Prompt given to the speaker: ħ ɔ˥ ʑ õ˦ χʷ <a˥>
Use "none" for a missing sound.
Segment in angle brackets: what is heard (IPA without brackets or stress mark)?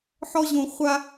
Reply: a˥